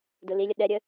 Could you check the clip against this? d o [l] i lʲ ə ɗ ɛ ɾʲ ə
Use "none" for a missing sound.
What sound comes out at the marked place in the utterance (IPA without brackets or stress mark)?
l